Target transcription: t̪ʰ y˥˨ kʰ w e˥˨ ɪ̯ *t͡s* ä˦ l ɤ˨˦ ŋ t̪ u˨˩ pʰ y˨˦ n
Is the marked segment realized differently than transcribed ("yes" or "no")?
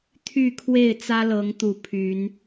no